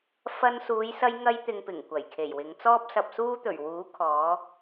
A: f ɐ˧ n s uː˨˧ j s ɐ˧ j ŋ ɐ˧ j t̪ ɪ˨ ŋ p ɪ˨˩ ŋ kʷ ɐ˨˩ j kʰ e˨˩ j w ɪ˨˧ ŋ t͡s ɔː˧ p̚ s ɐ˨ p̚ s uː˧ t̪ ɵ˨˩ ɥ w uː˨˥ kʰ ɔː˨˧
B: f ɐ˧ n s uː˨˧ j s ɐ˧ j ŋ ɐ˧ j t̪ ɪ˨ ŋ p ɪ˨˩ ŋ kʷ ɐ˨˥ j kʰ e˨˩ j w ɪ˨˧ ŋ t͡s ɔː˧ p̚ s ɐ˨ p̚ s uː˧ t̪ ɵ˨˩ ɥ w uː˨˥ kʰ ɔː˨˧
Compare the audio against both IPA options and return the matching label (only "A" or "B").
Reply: A